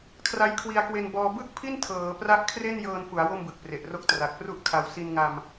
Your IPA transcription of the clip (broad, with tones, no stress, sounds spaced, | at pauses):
kʰ r a˦˥ j kʰ w i˧ a̯ k w e˧ n b ɔː˧ b ɯ˥˩ k̚ pʰ i˥˩ n tʰ ɤː˩˦ p r a˦˥ ʔ kʰ r e˥˩ n j ɤː˧ n f u˩˦ a̯ w o˥˩ m b ɯ˨˩ k̚ p r e˨˩ ʔ r o˥˩ k̚ t r a˨˩ k̚ p r u˥˩ ʔ kʰ a˧ w s i˧ n ŋ a˧ m